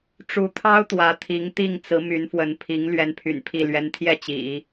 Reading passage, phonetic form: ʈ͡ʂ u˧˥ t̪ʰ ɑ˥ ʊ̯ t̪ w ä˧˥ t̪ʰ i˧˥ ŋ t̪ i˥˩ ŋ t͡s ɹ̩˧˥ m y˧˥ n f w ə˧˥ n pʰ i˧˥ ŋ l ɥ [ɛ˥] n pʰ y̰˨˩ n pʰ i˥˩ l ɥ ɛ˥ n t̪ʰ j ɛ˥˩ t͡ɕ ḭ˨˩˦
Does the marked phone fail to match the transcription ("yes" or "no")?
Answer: no